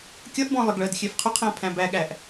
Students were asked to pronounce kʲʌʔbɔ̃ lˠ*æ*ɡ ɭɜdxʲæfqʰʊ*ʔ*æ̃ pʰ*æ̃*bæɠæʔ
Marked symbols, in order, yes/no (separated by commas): no, no, yes